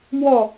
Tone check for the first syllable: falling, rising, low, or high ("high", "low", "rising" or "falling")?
falling